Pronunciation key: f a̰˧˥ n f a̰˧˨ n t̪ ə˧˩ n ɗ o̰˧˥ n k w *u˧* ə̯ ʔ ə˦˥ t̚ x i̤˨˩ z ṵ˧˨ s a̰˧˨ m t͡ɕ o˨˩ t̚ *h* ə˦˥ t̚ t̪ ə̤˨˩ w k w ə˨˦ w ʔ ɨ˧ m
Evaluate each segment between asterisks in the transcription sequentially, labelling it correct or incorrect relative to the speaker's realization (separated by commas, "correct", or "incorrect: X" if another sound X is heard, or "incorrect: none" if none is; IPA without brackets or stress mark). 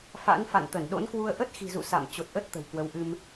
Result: correct, incorrect: ʔ